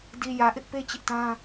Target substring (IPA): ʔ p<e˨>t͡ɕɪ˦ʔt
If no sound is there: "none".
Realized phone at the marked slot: e˦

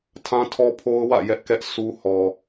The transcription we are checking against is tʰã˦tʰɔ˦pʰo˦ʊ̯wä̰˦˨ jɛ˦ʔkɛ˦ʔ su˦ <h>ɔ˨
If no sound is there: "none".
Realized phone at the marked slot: h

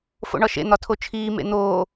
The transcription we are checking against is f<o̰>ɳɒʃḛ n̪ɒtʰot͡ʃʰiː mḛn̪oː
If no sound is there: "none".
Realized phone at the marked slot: o̰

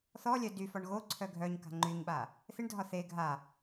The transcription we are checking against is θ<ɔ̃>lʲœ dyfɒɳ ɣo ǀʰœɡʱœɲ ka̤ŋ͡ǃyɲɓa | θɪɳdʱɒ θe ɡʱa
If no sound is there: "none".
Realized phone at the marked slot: ɔ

